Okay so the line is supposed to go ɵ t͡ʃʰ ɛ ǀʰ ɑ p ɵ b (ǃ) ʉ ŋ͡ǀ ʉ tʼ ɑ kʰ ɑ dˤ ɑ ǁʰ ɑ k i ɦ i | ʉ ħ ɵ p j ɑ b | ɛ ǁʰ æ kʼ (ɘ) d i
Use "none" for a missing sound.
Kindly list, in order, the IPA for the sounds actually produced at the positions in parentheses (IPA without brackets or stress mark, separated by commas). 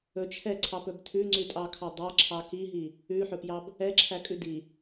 tʰ, ʉ